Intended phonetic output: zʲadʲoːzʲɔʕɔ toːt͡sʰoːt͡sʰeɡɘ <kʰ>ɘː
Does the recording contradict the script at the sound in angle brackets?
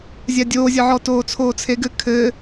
no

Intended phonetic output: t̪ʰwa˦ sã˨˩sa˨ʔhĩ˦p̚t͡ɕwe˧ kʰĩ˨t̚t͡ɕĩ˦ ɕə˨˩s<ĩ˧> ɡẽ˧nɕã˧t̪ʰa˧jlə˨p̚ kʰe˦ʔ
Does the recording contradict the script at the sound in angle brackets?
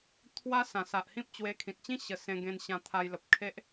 yes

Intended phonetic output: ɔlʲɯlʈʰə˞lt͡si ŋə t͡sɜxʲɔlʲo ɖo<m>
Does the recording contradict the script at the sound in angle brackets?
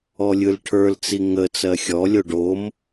no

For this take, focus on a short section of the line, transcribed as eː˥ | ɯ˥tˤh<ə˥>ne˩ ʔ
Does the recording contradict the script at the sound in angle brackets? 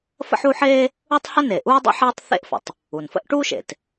no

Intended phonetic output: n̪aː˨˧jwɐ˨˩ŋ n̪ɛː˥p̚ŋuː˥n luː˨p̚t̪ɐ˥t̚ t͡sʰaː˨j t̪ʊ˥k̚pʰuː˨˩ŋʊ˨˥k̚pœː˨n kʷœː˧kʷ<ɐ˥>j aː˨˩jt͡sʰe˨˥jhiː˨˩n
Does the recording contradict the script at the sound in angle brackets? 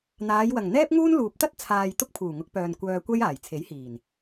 no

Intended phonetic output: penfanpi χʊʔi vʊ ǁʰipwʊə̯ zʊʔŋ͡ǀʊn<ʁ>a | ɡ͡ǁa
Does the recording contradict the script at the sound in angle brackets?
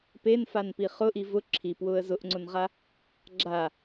no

